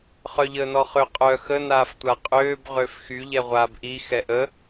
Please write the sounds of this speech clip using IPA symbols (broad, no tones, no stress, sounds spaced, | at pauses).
χ œ ʎ əː n ɔ χ ø qʼ œ x ə n aː f tʷ a qʼ øː b ʁ ø f x y ʎ ɛ ʁʷ aː b ʔ i x ɛ ʔ ə